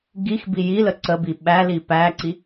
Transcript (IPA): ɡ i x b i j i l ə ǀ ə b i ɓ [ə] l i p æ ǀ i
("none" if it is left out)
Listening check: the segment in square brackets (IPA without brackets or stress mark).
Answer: æ